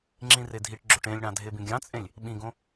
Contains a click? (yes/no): yes